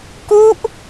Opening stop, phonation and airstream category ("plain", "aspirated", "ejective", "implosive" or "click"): plain